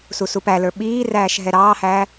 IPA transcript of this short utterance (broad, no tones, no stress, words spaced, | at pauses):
susupælə˞ ɓiːræːʃ ɦɛɾɑːhæː